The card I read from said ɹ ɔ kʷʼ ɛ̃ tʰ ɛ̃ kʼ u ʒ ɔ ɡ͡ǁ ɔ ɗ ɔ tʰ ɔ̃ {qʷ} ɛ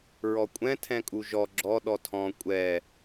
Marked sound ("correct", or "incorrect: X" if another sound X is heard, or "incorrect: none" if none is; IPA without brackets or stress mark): incorrect: kʷʼ